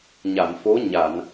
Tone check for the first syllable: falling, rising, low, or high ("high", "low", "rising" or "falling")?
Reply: low